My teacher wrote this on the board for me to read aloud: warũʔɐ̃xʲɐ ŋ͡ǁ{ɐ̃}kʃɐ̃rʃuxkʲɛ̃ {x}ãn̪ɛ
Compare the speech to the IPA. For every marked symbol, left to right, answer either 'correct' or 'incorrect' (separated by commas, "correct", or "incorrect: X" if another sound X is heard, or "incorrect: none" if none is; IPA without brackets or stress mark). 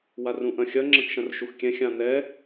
correct, incorrect: xʲ